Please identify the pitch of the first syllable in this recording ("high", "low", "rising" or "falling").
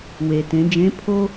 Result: low